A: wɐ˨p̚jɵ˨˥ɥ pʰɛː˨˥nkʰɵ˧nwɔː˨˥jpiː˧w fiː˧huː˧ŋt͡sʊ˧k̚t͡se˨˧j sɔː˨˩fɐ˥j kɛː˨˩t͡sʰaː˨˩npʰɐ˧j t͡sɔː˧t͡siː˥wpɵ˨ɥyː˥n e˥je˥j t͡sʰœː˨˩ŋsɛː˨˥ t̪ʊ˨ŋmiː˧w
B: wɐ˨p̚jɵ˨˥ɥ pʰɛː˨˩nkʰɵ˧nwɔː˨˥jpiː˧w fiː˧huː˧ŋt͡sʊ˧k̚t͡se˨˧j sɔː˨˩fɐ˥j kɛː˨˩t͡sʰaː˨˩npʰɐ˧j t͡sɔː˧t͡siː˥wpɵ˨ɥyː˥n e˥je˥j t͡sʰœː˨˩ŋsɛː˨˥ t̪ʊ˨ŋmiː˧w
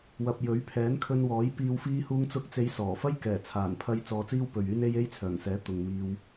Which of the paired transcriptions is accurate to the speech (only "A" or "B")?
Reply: A